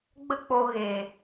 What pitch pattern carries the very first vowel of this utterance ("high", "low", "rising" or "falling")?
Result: high